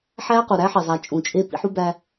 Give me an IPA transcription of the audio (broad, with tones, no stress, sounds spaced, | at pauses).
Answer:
ħ æ˦ q u˨ ɾ æ˦ ħ e˨ zˤ æ˨ t͡ʃʼ ũ˨ t͡ʃʼ e˦ p ḭ˦ ħ u˦ b æ˦